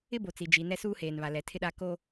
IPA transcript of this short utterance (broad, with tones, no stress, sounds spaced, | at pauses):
ɪ˦ b o˨ t͡s i˨ d͡ʒ i˨ n ɛ˦ s uː˦ h eː˨ n β a˨ l ɛ˨ tʰ ɪ˦ ɗ a˦ k o˦